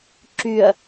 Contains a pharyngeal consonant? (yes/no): no